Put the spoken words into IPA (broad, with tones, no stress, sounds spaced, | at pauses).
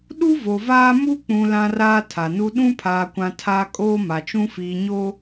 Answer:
ɗ u˦ v o˨ v aː˦ m u˦ k͡p ũ˨ l ã˦ r aː˦ tʰ a˨ n u˦ ɗ ũ˦ pʰ aː˨ kʷ ã˨ tʰ aː˦ kʼ oː˦ m a˨ t͡ʃ ũ˦ f iː˨ ɲ o˦